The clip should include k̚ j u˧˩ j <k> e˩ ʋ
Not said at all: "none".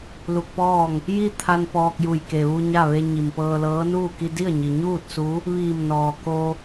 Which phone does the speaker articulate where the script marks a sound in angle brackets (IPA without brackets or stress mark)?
k